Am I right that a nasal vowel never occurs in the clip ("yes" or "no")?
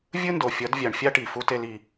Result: yes